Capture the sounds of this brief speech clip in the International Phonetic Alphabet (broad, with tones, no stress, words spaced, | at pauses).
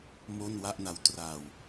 mo˥˩nwa˥˩ʔna˦˥w tra˧w